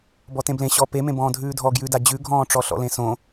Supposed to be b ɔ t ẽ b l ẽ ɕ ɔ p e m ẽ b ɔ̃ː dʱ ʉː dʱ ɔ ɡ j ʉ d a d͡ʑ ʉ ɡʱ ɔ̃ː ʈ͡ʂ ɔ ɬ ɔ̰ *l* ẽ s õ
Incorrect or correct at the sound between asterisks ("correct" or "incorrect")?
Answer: correct